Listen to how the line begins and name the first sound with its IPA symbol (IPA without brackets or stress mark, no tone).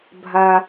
bʱ